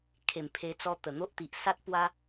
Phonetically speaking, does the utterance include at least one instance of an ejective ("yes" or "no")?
no